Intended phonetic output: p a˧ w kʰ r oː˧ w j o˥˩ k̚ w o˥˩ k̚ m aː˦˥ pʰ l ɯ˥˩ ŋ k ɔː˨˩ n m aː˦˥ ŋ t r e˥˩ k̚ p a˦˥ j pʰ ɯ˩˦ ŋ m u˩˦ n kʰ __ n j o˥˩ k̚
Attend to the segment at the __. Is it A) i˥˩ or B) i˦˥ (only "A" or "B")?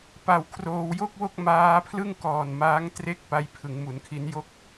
B